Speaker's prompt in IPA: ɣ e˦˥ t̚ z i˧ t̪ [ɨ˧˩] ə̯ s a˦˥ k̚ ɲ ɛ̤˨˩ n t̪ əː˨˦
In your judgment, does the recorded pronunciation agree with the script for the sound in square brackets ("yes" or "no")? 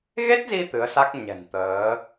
no